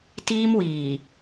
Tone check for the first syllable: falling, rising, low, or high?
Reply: high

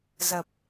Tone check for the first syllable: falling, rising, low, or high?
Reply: low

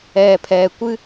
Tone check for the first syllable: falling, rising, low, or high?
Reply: low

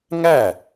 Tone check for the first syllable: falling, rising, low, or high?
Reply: falling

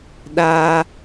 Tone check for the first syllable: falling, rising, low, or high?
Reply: high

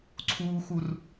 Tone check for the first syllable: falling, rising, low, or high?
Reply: high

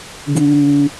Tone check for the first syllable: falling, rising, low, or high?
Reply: high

